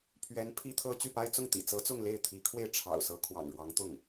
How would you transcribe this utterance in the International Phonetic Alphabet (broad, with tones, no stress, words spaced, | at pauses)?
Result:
pʰɥɛ˧˥n pʰi˥t̪ʰɤ˥ t͡ɕy˥˩pa˥ɪ̯ t͡sʊ˥˩ŋt̪ḭ˨˩t͡sɤ˧˥t͡sʊ˥˧ŋ le˥˩ɪ̯t̪ʰi˧˥kʰwe˥˩ɪ̯ ʈ͡ʂʰɑ̰˨˩ʊ̯sɤ˧˥ kʰwɑ̰˨˩ŋɻwɑ˧˥ŋ t̪ʊ˥˩ŋ